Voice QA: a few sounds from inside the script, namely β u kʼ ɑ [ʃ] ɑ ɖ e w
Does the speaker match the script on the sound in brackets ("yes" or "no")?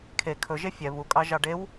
no